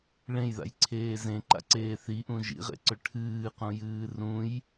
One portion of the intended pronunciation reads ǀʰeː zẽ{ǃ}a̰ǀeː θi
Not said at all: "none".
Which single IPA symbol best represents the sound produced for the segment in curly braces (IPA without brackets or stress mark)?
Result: ǃ